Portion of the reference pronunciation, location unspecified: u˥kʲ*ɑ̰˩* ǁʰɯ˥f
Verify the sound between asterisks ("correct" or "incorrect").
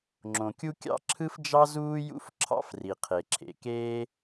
incorrect